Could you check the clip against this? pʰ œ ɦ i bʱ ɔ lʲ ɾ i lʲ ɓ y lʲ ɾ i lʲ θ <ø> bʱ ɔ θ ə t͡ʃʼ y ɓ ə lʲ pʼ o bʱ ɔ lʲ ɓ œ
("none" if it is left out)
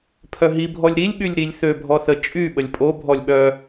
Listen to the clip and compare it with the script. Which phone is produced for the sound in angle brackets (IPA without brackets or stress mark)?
ø